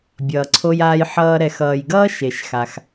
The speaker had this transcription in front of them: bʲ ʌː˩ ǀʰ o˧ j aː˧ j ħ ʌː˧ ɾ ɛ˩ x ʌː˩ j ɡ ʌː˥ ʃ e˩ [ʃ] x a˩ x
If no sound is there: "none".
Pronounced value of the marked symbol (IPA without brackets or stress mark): ʃ